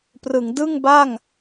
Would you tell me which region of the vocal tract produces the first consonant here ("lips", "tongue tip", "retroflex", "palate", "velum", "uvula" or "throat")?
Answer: lips